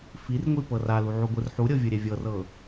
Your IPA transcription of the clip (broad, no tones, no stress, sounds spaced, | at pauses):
f i r ŋʷ i p ɤ r a l u ʕ u ɡʷ ɯ r ħ u ɾʲ ɤ vʲ ɯ ɾʲ ɛ vʲ ɤ r ɤ